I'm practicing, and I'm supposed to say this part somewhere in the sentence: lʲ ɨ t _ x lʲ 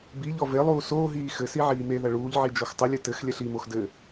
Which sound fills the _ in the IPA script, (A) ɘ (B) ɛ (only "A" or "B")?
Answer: A